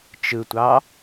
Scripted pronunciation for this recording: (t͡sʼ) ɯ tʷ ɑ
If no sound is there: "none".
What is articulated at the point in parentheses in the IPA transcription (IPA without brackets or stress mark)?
t͡ʃ